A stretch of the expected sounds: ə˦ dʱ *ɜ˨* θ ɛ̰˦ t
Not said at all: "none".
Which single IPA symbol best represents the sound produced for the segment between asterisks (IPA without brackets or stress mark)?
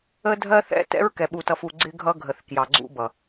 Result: ɜ˦